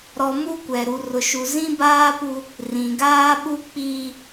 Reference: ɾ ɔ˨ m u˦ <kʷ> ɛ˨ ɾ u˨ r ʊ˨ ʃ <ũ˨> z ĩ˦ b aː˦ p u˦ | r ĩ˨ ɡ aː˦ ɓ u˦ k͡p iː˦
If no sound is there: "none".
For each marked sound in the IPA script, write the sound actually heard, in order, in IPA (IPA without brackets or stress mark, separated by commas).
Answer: kʷ, u˨